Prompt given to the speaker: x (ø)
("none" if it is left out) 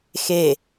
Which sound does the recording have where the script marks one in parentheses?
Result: e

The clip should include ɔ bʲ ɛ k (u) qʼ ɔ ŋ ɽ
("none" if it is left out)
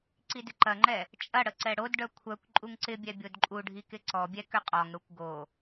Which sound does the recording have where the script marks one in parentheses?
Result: ʏ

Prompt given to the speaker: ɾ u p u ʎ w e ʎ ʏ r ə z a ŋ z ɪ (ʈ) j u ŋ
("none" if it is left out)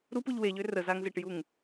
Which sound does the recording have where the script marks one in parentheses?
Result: ʈ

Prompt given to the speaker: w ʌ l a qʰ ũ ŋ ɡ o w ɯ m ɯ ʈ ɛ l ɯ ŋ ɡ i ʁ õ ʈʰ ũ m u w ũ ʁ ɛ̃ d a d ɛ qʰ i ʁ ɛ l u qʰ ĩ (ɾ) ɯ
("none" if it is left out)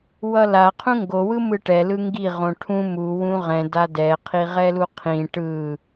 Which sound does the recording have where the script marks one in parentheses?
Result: ʈ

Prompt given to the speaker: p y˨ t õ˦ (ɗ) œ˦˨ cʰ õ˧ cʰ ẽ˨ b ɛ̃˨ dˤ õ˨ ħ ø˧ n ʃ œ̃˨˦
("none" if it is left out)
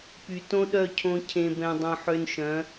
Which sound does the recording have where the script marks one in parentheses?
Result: ɗ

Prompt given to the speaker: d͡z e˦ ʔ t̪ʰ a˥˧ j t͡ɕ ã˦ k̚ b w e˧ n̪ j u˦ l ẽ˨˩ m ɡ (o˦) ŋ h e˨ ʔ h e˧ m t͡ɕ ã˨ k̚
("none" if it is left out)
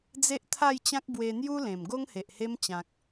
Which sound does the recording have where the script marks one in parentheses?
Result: o˦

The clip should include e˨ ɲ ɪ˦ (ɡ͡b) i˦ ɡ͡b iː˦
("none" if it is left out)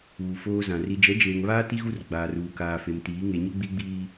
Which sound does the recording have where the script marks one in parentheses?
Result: ɡ͡b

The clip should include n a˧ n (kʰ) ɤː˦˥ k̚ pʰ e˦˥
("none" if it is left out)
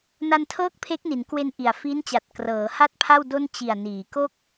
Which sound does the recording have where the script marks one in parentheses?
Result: tʰ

